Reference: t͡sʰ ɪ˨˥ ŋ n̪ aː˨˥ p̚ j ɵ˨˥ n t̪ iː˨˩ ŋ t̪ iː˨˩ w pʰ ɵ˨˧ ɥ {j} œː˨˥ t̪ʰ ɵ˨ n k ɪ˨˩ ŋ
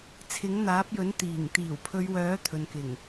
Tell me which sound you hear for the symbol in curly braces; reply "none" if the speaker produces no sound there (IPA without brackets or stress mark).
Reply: w